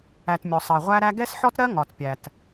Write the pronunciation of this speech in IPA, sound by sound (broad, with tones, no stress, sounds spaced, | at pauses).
æ˨ t mʲ ɔ˨ sˤ ɜ˨ ʁʷ æ˦ ɾ æ˦ ɡ ɛ˦ s ħ ɔ˦ t ɾ ɜ˦ ŋ ɒ˨ t pʲ æ˨ t